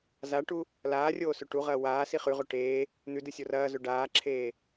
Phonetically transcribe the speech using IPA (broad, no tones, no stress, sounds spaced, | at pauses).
z a ʈ u | l aː rʲ oː s ɵ ʈ u ʁ ɐː w aː s i χ ʉ ʁ o ʈ eː | n̪ ʉ d ɨ sʲ o r ɐː z ɵ ɖ aː ǁʰ eː